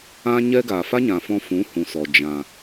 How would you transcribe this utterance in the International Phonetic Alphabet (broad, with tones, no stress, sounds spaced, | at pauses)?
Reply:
ã˦ ɲ ɛ˦ ɡ aː˨ f a˦ ɲ ã˨ f ɔ̃˧ f ũ˨˦ h ũ˨ s ɔ˨ d͡ʒ ã˨